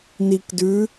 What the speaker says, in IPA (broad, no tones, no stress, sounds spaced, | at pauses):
n i k d ʉ